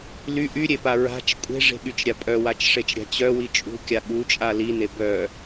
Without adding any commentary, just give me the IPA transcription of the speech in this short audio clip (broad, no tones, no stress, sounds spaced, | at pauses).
l y ʔ y ɾʲ e p a ɹ a̤ t͡ʃ kʷʼ e̤ ʐ e̤ ɠ y t͡ʃ ɾʲ a pʼ œ w a t͡ʃ ʂ e t͡ʃ ɾʲ a̤ t͡ɕ œ w i t͡ʃʼ ṳ kʲ a ɠ u t͡ʃʼ a l i n e b œ